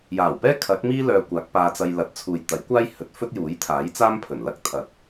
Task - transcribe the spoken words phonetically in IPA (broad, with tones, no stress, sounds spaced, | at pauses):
j aː˨˩ w p ɛː˥ kʰ ɐ˨˥ k̚ m iː˥ l œː˧ kʷ aː˨˥ k̚ p aː˧ t͡s ɐ˧ j l ɐ˨˥ t̚ t͡sʰ uː˨ j t̪ ɐ˨˥ j kʷ aː˥ j h ɵ˨˥ t̚ f ɵ˥ t̚ j uː˨˥ j t̪ʰ aː˨˥ j t͡s aː˥ m pʰ ɵ˨˩ n l ɐ˥ k̚ t̪ʰ ɐ˨˥ t̚